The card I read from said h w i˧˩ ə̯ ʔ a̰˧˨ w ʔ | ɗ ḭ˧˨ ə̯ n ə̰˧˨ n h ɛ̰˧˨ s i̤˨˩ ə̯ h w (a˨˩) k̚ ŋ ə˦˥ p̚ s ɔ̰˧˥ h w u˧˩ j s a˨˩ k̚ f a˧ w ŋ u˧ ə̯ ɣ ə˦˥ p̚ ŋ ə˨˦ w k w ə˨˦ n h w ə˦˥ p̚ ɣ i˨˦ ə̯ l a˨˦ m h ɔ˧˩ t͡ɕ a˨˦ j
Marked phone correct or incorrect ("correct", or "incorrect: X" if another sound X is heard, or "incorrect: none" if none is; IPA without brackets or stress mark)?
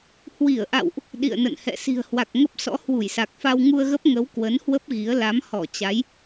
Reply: correct